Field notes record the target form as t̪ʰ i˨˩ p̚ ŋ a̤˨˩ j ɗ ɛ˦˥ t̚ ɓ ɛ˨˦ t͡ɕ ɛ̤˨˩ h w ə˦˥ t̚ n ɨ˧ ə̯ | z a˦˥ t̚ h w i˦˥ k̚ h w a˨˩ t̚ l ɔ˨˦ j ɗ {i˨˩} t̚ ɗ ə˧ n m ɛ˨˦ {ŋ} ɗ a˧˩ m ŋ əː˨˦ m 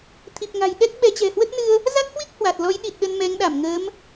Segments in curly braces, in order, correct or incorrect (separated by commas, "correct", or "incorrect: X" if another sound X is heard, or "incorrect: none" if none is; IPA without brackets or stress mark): correct, correct